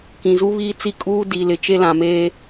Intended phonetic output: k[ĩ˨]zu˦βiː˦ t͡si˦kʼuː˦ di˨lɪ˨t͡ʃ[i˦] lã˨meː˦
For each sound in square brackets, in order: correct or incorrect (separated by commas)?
correct, incorrect